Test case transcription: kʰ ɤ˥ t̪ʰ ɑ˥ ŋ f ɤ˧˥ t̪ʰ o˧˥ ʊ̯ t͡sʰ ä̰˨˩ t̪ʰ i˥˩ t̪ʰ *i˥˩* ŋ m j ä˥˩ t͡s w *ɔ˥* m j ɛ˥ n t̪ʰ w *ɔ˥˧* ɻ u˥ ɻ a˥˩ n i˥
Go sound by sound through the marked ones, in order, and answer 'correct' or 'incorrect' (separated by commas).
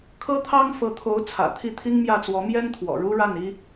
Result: incorrect, incorrect, incorrect